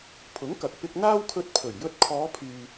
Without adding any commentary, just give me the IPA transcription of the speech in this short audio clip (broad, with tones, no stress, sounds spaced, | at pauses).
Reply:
pʰ ʊ˨˥ ŋ k ɐ˨ k̚ p ɪ˧ k̚ n̪ aː˥ w kʰ ɵ˧ t̚ pʰ ɵ˨˩ ɥ j ɵ˧ t̚ kʰ ɔː˨˧ pʰ yː˨